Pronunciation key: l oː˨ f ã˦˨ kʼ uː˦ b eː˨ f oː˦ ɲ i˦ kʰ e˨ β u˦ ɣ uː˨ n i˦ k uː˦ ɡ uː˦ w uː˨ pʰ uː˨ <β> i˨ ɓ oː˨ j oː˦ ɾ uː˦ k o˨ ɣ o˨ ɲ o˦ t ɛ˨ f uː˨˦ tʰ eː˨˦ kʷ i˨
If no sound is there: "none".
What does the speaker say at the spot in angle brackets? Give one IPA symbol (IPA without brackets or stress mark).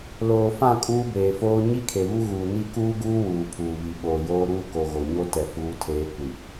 β